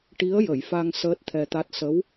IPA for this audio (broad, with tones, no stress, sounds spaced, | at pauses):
ʈ i˧˥ ə̯ j ə˨˩˨ j f a˧ ŋ s əː˦˥ t̚ t̪ʰ ɛ˧ t̪ a˦˥ t̚ s ə˧˥ w